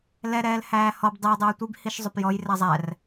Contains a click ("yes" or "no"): no